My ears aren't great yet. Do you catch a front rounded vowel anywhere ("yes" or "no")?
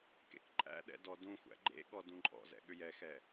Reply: yes